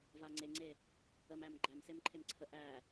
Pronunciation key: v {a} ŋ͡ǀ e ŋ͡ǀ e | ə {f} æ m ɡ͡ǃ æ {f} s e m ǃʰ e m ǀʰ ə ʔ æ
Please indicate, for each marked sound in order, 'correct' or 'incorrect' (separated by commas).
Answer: correct, incorrect, incorrect